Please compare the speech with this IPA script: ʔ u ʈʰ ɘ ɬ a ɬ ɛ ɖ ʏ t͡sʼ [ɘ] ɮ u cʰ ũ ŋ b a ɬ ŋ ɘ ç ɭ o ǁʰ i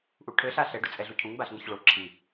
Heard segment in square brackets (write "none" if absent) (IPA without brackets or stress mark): ɛ